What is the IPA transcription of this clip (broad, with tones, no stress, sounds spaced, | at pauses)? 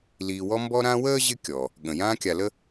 l iː˨ w ɔ˦ m b ɔ˦ ɾ ã˦ w əː˥ ʑ ɪ˦ kʲ ɔ˩ | ɠ ə̃˩ j ãː˦ kʲ a˨ l ə˥